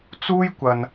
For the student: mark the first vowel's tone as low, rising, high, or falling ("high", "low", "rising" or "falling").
high